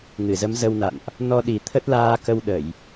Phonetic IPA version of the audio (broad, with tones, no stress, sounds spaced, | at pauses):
ŋ ɨ˧˩ z ə˨˦ m z ə˧ w n a̰˧˨ n ʔ | n ɔ˧ ɗ i˨˩ t̪ʰ ə˦˥ t̚ l aː˧ k ə˧ w ɗ ə˧˩˨ j